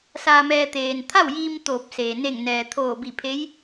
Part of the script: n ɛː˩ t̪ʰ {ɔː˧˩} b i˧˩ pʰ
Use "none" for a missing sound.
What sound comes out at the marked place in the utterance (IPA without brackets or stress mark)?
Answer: oː˧˩